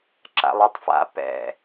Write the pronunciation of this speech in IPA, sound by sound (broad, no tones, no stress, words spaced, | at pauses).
ǁa̰lˠatˤfa̰ pɛ̰